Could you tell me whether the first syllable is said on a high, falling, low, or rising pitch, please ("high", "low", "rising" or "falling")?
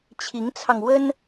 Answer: rising